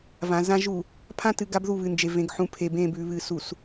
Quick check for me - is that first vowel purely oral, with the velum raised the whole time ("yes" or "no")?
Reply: no